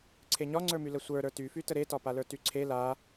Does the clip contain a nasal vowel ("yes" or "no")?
no